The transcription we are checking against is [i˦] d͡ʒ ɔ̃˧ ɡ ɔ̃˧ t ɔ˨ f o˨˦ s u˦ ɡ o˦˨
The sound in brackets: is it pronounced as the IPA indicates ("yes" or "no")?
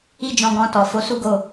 yes